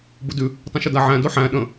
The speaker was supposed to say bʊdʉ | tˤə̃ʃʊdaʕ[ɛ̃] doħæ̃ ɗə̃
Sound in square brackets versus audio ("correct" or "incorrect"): incorrect